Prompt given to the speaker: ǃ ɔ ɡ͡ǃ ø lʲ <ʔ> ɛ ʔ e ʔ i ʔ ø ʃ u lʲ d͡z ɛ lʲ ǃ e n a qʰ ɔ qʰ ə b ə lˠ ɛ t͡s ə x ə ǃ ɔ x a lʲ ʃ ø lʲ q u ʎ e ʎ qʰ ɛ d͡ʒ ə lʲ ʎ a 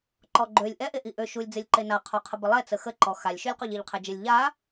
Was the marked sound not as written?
no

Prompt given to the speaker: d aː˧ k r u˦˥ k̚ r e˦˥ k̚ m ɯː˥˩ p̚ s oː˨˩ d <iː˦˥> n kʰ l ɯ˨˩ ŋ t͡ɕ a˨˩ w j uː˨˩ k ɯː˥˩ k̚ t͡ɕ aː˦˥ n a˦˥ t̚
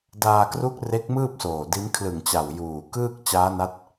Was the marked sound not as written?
yes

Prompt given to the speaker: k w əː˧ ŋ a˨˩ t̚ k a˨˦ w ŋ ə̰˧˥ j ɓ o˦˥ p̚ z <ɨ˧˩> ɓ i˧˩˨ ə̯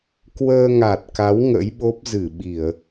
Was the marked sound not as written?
no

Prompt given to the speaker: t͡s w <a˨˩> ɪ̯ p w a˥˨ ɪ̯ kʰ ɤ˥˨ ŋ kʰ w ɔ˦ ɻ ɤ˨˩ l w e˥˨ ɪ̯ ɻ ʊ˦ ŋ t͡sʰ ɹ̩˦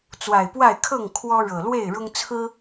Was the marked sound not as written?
no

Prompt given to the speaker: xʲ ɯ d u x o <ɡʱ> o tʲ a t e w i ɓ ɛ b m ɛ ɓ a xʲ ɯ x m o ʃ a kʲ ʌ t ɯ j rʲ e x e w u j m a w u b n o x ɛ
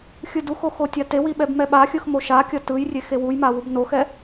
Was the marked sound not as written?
yes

